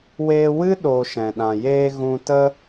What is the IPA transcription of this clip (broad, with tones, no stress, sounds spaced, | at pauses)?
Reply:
w eː˧ w ɨ˦ ɗ oː˨ ʃ ɛ̃˨ ɗ ã˨ j eː˦ ɣ ũ˧ t ə˦